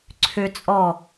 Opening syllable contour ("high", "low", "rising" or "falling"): high